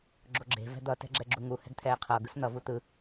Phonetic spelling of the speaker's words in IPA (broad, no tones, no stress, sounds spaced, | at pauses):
ɡ͡ǁ o ɡ͡ǁ e̤ v ɛ̤ d̪ ʌ t ɛ̤ ɡ͡ǁ ɛ ɡ͡ǁ u ŋ u h ɛ̤ ɡ t̪ʰ ɛː qʰ ʌː ɡ ɯ s n̪ ʌ v u t̪ ɯ